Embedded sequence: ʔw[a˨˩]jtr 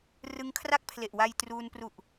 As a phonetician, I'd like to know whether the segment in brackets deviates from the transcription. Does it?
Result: yes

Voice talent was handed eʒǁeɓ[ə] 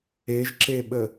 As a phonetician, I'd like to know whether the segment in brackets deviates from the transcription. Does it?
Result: no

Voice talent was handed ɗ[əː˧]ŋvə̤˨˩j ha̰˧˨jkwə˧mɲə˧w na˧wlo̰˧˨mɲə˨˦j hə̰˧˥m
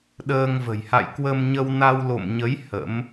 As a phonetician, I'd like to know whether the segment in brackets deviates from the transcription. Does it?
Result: no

